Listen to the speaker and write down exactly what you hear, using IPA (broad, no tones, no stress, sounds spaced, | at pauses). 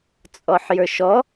t͡sʼ ɔ ħ j ə˞ ʃ ɔ